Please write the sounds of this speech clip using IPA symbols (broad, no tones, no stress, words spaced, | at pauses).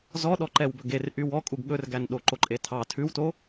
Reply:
zɔɗɔǃɛw bɵɡerʔy wɔkʼuɡ ɠɵrɡæn ɗoǃoǃʼetʰɑ tʰʉwto